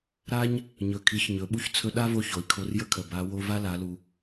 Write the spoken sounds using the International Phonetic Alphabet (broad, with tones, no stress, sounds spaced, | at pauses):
ɾ a˥ ɲ | ɲ ɵ˩ kʰ i˩˧ ç ɲ ɵ˩˧ ɓ u˥ ç t͡sʰ ɵ˧ ɗ a˥ v o˧ ç o˩ i̯ kʰ o˧ r j ə˥ kʰ ə˩ b a˩˧ w o˧ v a˥ l a˩˧ l u˩